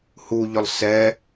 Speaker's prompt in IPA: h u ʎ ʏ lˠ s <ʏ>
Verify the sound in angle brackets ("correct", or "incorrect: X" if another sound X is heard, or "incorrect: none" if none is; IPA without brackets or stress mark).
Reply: incorrect: ɛ